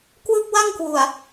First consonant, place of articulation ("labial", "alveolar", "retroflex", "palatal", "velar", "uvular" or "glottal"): velar